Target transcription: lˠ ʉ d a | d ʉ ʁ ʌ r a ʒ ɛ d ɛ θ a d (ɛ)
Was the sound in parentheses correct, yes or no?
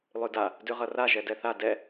yes